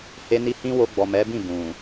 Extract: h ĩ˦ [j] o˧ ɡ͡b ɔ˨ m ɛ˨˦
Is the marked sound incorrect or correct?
incorrect: w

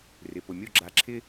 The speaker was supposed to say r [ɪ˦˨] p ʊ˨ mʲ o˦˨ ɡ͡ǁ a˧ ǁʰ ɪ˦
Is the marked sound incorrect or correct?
incorrect: ɪ˨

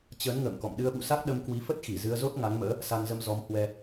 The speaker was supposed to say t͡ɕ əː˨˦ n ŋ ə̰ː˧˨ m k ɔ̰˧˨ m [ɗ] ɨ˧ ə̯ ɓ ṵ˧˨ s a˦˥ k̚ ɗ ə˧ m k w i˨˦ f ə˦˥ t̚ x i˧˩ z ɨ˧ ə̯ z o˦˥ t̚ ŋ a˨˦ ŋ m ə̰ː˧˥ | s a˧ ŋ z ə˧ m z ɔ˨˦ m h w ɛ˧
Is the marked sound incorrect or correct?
correct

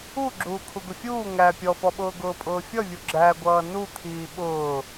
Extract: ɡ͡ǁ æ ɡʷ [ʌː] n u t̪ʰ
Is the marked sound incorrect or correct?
correct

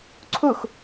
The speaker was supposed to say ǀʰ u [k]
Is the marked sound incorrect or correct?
incorrect: x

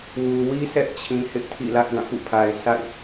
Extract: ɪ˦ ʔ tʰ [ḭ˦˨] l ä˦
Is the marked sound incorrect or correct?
correct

